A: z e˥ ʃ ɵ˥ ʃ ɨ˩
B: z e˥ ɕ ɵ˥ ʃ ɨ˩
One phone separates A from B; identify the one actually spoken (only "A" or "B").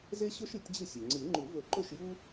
B